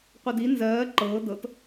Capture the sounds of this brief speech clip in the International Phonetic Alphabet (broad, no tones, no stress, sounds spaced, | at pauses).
qʷ ɤ d i n z ɜː ǃ ɤː d ɤ t